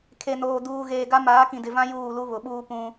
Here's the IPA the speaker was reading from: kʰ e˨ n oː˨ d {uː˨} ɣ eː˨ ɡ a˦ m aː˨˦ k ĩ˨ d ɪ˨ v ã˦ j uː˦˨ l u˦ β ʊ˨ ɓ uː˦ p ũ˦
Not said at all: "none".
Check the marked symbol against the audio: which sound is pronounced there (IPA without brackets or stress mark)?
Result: uː˨